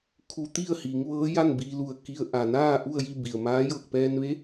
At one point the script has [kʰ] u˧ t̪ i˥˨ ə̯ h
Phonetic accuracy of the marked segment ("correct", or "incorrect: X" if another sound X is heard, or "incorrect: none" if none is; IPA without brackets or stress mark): correct